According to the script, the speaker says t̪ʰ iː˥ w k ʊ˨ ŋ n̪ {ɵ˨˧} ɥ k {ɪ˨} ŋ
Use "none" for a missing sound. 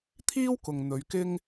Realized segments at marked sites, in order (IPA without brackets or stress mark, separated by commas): ɵ˨˧, ɪ˥